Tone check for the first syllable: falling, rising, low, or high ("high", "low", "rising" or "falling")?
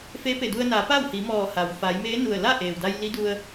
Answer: rising